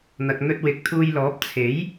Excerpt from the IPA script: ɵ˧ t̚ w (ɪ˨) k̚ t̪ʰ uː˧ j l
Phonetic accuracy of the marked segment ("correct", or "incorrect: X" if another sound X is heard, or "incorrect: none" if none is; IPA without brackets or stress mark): correct